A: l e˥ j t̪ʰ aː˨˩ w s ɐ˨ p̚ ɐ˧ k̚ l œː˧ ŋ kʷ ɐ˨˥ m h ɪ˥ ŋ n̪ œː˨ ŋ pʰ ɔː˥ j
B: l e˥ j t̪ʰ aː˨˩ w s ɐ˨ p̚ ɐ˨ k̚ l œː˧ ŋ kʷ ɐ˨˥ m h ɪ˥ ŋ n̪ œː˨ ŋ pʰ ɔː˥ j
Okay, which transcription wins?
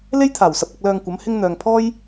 A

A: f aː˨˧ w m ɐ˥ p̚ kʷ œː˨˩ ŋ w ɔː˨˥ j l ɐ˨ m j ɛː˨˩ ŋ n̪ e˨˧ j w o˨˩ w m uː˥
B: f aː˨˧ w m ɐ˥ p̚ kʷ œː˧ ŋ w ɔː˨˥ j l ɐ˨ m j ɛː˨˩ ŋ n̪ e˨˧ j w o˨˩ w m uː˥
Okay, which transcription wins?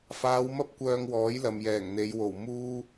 B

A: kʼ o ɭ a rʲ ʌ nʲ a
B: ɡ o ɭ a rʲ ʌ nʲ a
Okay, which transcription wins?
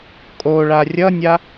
A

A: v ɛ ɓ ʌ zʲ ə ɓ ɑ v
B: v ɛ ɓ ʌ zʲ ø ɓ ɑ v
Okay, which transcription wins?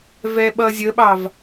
A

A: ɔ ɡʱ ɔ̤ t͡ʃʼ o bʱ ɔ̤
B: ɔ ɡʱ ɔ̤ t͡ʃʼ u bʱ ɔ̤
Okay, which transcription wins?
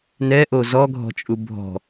B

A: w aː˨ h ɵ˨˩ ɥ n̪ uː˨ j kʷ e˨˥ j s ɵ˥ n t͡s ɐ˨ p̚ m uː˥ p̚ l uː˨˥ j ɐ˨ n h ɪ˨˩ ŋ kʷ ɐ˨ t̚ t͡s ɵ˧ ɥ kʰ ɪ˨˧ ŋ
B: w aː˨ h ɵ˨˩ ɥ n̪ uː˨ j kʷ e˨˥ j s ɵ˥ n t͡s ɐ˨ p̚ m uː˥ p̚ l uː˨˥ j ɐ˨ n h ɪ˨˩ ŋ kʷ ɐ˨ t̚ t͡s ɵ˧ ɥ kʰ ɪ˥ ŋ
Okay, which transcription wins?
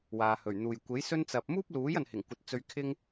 B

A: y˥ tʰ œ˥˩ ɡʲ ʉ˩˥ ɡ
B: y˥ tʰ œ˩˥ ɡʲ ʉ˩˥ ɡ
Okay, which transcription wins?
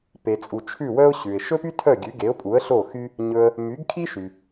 A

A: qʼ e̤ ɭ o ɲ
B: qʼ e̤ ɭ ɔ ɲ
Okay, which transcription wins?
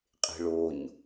A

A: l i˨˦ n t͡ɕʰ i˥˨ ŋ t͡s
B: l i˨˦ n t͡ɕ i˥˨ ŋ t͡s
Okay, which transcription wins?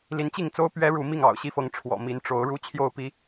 B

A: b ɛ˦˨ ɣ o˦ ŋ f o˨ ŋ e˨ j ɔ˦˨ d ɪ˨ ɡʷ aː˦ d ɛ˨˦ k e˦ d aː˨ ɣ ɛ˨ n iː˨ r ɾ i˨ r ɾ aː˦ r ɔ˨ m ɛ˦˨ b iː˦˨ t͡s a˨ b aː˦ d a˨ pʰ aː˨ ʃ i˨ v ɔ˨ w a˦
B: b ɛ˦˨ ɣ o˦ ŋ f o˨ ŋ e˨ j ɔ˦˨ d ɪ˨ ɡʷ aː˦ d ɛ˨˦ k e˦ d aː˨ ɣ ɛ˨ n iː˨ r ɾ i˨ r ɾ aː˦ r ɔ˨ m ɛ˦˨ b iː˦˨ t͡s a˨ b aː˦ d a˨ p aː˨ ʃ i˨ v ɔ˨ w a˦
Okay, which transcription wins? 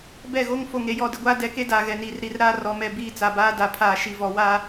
A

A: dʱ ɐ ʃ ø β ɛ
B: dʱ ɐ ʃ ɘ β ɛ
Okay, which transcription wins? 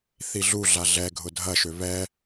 A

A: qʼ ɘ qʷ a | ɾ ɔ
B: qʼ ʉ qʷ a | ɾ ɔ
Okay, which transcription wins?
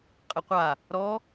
A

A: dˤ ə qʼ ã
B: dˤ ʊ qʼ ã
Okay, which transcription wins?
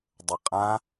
A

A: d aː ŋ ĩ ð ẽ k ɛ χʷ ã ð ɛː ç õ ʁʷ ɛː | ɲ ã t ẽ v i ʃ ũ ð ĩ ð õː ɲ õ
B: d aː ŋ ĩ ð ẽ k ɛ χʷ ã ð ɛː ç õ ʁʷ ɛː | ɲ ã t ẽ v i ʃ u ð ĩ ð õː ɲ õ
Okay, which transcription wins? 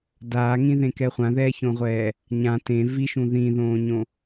A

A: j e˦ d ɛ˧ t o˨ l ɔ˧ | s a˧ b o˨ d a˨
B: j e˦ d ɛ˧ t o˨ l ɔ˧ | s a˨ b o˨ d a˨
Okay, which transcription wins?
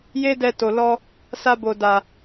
A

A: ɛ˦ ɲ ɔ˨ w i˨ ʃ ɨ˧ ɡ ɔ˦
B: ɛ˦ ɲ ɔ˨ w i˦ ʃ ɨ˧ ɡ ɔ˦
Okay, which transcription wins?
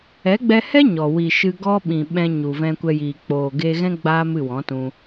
A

